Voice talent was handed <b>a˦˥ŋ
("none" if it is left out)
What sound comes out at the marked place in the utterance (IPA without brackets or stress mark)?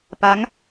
p